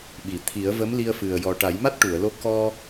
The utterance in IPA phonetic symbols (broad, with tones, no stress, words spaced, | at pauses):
ɓi˨˩˨t̪ʰi˨˩˦ə̯ və˧˥mli˧ə̯ fɨ˨˩ə̯jɔ˨˩ ʈa˨˩˦jma˦˥t̚ʈu˨˩˨ə̯lo˧ kɔ˧